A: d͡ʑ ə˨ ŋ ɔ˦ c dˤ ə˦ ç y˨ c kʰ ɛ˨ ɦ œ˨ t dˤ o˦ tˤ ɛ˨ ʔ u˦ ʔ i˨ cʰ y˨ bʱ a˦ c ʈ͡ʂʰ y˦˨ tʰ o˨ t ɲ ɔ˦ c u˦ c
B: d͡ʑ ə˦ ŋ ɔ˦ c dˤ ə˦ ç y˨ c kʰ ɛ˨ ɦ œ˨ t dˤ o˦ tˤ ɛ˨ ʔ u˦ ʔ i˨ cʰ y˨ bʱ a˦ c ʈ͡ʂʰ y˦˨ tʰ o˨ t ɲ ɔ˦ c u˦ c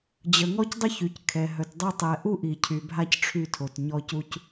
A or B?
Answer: A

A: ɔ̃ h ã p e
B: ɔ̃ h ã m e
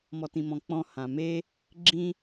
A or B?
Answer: B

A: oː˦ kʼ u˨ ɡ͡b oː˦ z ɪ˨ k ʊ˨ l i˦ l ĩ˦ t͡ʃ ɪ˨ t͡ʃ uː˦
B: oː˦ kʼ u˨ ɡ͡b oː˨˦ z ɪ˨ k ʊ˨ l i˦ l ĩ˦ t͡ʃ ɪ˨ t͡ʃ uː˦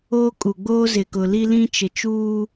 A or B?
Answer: A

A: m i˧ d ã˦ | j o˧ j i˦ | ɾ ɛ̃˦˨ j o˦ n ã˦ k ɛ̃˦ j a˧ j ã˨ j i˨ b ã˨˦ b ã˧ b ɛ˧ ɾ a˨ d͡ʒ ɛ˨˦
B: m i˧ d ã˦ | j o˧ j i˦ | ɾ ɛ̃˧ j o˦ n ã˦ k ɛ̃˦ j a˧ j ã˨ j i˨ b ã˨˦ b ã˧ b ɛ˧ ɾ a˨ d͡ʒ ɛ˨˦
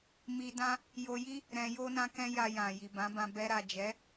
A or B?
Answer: B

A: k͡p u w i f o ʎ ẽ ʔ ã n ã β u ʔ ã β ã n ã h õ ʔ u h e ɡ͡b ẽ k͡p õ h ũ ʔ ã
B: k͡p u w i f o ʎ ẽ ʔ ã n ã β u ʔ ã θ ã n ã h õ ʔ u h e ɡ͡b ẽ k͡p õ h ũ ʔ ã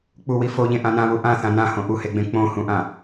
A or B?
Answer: B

